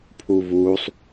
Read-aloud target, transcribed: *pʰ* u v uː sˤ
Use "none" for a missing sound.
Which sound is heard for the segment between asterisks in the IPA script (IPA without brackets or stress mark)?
pʰ